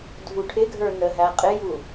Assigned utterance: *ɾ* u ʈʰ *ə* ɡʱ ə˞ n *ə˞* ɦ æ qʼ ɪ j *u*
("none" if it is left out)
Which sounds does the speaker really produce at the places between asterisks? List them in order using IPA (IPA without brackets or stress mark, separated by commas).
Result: dʱ, ɪ, ə, u